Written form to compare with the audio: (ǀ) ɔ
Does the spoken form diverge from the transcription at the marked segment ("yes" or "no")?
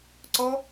no